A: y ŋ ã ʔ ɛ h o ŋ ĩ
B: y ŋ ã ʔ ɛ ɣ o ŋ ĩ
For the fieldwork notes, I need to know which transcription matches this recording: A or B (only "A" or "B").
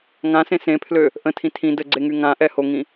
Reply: A